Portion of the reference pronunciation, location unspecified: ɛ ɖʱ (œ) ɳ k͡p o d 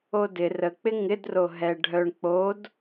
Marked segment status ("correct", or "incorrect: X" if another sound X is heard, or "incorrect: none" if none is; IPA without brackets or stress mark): correct